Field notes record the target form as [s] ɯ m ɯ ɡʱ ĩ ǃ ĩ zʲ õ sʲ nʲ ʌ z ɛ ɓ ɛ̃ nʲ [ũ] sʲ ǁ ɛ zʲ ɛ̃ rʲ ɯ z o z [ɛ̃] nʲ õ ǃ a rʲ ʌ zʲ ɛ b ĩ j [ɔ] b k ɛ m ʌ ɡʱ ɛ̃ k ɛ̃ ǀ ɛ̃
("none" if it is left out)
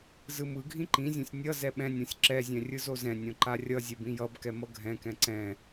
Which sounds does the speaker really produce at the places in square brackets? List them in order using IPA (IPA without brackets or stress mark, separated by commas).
z, õ, ɛ̃, ʌ